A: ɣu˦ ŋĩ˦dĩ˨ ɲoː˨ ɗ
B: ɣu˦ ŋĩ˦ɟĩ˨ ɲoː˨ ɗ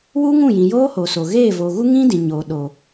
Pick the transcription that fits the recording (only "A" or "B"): A